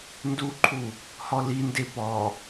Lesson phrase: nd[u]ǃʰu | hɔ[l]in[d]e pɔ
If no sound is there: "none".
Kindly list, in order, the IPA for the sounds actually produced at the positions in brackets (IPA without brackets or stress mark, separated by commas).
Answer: u, l, d